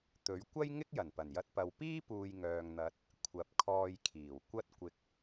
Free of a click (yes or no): yes